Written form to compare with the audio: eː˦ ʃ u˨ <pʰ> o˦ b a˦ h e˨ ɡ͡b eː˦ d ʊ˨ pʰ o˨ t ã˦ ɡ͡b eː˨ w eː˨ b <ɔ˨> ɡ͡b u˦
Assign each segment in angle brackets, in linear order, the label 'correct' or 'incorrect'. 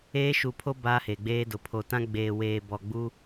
correct, correct

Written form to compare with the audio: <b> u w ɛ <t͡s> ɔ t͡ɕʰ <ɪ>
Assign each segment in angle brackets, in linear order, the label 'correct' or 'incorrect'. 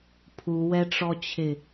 incorrect: pʰ, incorrect: ʈ͡ʂ, correct

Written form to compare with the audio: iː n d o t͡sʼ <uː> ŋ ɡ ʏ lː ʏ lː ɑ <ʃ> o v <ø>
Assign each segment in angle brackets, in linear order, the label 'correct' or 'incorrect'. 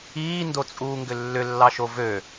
correct, correct, correct

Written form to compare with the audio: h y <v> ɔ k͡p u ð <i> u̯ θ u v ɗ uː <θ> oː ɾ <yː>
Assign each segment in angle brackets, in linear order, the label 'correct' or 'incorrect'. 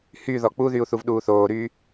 incorrect: ð, incorrect: y, correct, correct

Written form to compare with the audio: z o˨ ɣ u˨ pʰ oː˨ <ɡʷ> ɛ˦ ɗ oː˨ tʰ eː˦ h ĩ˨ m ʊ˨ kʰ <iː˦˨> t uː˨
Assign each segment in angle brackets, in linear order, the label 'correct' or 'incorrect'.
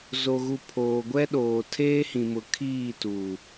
correct, correct

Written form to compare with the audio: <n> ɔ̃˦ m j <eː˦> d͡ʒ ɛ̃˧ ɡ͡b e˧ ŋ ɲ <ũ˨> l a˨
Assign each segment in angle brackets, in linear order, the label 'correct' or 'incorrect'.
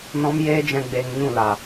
correct, correct, incorrect: ũ˦˨

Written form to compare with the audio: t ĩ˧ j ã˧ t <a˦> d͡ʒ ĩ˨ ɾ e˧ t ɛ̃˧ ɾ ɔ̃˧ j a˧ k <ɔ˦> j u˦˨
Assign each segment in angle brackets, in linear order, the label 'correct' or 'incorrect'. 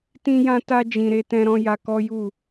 incorrect: a˧, correct

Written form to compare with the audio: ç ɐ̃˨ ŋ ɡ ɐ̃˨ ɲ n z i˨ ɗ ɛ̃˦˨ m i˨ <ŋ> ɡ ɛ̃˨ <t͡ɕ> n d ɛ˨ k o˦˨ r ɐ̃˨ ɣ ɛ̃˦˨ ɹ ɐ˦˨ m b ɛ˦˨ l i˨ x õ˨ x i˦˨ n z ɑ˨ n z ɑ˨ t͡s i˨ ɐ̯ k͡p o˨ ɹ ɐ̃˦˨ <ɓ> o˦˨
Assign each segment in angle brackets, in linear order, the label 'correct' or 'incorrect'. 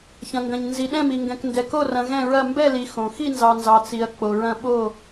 correct, incorrect: k, correct

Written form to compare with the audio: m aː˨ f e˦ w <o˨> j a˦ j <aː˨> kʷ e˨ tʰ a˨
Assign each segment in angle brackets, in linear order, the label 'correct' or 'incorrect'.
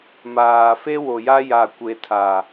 correct, incorrect: a˨

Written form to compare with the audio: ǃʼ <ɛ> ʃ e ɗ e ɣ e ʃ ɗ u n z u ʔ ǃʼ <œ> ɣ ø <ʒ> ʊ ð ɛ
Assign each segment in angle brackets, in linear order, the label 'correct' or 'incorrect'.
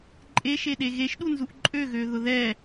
incorrect: e, incorrect: ø, incorrect: ð

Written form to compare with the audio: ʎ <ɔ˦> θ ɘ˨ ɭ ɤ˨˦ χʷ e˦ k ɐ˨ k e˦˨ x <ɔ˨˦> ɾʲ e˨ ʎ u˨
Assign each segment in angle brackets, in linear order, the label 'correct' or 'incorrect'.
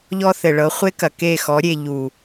correct, correct

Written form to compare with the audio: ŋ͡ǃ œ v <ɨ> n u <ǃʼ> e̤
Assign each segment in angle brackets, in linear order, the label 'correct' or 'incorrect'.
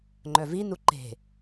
incorrect: i, incorrect: ǃ

